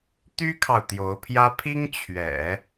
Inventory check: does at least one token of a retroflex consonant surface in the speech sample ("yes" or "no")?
no